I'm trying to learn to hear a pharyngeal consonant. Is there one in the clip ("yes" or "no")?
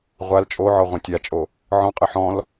yes